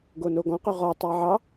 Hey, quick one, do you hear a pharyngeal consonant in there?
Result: yes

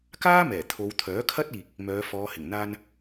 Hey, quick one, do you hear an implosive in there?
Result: no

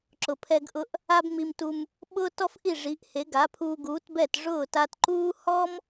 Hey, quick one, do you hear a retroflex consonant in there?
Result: yes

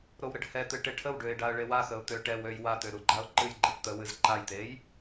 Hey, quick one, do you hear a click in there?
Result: yes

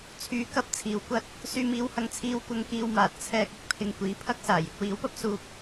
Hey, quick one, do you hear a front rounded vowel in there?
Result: yes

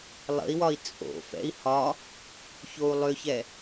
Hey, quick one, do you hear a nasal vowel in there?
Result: no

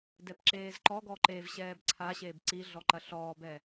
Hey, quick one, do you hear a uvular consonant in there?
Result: no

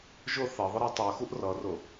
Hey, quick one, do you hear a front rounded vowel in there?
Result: no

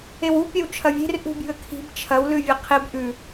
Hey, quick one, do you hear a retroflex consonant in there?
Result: no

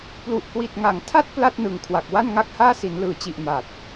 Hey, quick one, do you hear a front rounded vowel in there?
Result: no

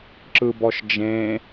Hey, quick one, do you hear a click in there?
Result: yes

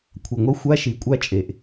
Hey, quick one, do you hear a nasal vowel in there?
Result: no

